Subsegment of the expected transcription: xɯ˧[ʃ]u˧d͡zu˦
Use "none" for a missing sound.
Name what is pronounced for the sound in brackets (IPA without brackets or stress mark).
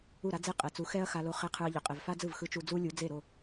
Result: t͡ʃ